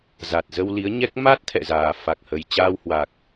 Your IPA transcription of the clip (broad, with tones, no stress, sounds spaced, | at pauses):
z a˨˩ t̚ z ə˧ w l i˨˦ ə̯ ɲ ɛ˦˥ k̚ m a˦˥ t̚ t̪ʰ ɛ̰˧˨ z aː˨˩ f a˨˩ k̚ h ə˨˩ j t͡ɕ aː˧ w h w a˨˩ k̚